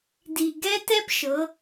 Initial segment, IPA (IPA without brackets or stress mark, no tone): d